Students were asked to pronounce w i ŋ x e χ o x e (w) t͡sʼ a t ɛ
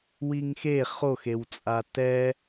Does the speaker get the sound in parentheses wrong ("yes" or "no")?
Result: no